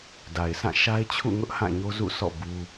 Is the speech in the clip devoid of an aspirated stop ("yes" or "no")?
no